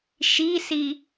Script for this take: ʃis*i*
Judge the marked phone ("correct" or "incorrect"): correct